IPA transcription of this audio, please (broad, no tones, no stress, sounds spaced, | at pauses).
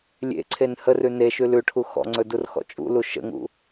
lʲ ḛ ǀʰ e n h ə r ʉ n e ʃ ʉ l ʉ ʈʰ u x ɔ̰ ŋ͡ǀ ɵ d u r x ɔ̰ t͡ʃʼ ṵ l u ʃ ə̰ ŋ ṵ